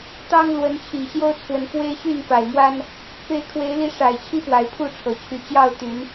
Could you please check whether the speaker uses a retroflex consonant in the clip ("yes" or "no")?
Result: yes